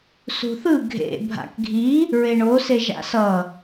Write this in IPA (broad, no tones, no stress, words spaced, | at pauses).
sṳθɯ ɡʱḛ bʱa̰kɡʱi | ɹeɳo seʒa̰sʌ